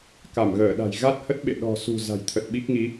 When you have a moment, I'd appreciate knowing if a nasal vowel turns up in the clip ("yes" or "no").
no